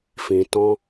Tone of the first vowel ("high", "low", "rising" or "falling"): low